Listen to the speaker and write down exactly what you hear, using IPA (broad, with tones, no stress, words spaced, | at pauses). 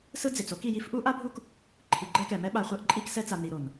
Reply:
sɯ˦d͡ze˨t͡so˦k i˨ji˦f ʔu˦ʔa˦bʱu˦k | ǃʰi˨ɡ͡ǃɛ˦kɛ˨ mɛ˦ɓa˨χʷɛ˦ʔ ǃʼi˦ksɛ˦t͡sa˨ ni˨ɾo˨n